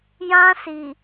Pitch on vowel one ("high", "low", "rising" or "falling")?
high